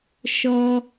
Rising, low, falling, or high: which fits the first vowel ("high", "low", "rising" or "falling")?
high